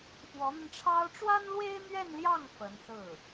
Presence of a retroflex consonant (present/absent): present